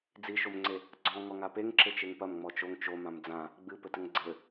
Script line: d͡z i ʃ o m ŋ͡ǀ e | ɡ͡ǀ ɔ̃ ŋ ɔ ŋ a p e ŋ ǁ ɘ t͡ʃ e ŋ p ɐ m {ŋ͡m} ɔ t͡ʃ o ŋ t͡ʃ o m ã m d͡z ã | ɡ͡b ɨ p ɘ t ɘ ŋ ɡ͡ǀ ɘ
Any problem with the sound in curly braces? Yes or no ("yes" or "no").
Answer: no